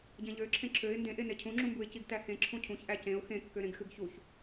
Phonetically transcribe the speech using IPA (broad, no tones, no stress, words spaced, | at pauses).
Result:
ɟẽʎøǁʰẽ ǁʰøɪ̯ ndẽʔe necʰũŋ͡ǁũmbuɪ̯ ciɡtæhẽ ǁʰũcʰũçʔæ cẽʊ̯ xẽkːøɾẽɡxɨɡ çuç